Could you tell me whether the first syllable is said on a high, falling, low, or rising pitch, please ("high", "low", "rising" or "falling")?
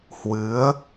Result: rising